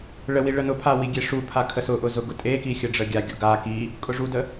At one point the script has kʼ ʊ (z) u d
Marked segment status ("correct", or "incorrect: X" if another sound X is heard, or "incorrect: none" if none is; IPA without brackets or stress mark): incorrect: ʐ